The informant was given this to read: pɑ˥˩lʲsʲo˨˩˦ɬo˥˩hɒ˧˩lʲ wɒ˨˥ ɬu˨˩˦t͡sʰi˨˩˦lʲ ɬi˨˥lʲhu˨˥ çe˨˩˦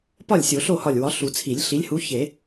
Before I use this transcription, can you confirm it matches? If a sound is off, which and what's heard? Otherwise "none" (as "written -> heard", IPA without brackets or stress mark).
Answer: ɑ˥˩ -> ɒ˥˩